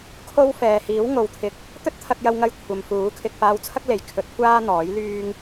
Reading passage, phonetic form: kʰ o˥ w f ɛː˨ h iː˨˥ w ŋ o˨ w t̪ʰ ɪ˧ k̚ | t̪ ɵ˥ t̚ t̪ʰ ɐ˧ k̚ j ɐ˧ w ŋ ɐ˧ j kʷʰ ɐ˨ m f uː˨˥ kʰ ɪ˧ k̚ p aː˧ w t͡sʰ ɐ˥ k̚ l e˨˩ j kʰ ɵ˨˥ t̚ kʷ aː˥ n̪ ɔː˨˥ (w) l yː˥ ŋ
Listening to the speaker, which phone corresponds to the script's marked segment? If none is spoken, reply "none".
j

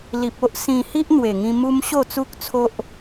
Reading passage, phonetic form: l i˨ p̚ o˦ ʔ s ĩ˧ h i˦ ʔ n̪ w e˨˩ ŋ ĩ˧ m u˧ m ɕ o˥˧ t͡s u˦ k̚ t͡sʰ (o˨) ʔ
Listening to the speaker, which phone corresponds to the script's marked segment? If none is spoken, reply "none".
o˦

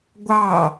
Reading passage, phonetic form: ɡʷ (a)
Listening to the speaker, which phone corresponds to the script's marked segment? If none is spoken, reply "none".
ɑ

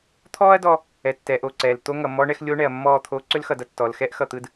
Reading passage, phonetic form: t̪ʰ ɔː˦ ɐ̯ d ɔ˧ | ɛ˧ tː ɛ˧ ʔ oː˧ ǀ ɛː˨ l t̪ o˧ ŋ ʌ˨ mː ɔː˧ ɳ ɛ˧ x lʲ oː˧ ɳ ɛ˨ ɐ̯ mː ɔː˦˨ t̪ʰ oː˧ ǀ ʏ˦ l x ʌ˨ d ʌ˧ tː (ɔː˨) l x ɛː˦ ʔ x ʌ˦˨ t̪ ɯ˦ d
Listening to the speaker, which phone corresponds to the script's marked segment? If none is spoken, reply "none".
ɔː˨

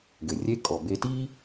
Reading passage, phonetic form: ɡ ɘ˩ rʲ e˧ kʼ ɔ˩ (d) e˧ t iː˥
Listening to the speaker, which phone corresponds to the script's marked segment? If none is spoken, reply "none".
b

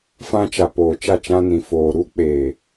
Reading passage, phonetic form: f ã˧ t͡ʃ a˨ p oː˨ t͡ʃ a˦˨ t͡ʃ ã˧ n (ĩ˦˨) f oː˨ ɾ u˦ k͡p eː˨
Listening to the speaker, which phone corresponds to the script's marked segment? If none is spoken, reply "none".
ĩ˨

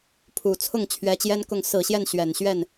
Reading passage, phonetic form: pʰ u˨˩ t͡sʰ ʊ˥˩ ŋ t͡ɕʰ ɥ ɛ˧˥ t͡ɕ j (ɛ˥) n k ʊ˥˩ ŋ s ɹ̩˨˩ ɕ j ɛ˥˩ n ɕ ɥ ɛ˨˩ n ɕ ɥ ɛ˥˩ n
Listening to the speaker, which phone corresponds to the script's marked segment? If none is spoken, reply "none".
ɛ˥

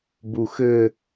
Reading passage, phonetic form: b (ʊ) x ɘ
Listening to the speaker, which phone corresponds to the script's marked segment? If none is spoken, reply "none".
u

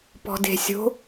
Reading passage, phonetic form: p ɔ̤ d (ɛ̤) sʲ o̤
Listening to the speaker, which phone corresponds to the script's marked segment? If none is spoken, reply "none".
e̤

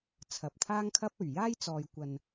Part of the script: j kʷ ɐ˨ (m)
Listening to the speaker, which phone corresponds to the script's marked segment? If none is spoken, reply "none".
n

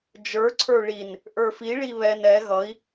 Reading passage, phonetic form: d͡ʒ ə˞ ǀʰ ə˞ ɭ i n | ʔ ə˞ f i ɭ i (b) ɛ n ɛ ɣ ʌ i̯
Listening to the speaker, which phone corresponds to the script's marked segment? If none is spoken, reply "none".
β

